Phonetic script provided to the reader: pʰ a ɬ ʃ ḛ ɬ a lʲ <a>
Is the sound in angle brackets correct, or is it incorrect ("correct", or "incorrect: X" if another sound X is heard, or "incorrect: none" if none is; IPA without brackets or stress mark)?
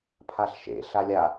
correct